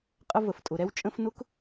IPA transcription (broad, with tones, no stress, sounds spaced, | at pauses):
qʼ ə˧ v ə˩ f tʼ ʊ˩ ɾ ɛ˧ w t͡ʃʼ ə̃˧ f n ʊ˧˥˧ k